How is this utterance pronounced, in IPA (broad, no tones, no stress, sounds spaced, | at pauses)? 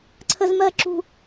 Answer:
ǀʰ ə z m ɜ ǁ ṳ